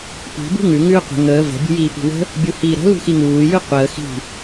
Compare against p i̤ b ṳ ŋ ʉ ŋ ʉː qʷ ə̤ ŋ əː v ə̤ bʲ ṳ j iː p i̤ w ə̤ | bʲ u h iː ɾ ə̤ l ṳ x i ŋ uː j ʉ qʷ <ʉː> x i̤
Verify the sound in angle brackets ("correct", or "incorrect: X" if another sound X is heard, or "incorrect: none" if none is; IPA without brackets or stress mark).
incorrect: əː